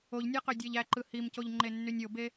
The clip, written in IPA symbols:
o ʎ nʲ æ q ø dʲ æ ʎ æ ǃ ɯ h i m c o ʎ ŋ͡ǃ e nː y nʲ o b e

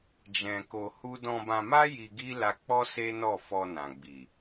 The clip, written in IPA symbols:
d͡ʒ ɛ̃˧ k o˧ h u˦ d ɔ̃˧ b ã˧ m a˦ j i˧ ɡ i˦ l a˧ k͡p ɔ˦ s e˦ n ɔ˦˨ f ɔ˧ n ã˨ ɡ͡b i˨

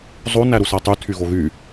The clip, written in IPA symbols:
zˤ o n æ ɾ u s æ tˤ y tʰ y ɣ o ɣ y

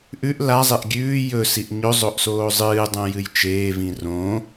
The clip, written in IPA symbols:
ʔ ʉ ʔ l a zˤ e ʔ ɡʲ ʉː j ɵ s i ʔ ɲ ɵ zˤ o ʔ s oː zˤ ɨː dˤ õ j ɨ j t͡ʃ eː v ĩ r õ

